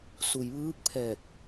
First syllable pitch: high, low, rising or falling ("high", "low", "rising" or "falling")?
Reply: low